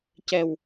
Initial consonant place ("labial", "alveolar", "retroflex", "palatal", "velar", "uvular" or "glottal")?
palatal